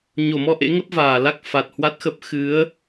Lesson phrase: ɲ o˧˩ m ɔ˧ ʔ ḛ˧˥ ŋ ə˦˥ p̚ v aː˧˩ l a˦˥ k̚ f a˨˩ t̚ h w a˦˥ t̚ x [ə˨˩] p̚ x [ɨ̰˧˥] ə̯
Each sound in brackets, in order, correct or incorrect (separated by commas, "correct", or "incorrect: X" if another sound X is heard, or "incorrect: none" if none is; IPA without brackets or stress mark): incorrect: ə˦˥, incorrect: ɨ˨˦